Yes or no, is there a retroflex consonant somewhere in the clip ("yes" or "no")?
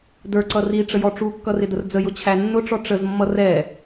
yes